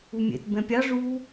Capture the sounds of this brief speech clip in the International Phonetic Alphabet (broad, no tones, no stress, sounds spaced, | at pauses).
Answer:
u mʲ ɛ̰ t b ɛ̃ pʲ ɑ ʐ u